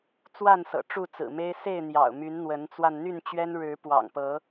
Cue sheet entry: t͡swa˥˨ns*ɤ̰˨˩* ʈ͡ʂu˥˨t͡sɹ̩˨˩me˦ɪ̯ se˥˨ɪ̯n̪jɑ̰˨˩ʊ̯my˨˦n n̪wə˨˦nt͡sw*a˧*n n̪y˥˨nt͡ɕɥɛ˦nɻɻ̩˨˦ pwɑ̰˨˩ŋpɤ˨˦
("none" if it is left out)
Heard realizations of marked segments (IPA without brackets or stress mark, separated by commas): ɤ̰˨˩, a˧